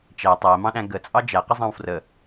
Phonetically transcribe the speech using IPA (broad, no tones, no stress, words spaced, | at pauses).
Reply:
t͡ʃæ tˤæmɑ̃ɗæ̃ ɡət͡sʼɑ d͡ʒæqəzˤɑ̃w frə